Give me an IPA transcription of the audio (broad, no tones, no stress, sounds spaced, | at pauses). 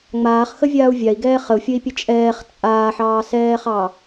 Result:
ŋ͡m aː χ x ə vʲ aː u̯ vʲ a i̯ ɡ ɛː χ ə u̯ fʲ ə i̯ pʲ ə t͡ʃʼ ɛː χ t͡sʼ aː ħ ɑː s ɛː χ ɑ